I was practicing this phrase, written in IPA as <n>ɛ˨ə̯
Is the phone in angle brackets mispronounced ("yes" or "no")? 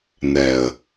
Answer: no